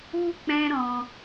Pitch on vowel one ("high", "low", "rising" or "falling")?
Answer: high